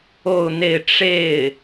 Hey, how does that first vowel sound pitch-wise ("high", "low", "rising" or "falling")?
falling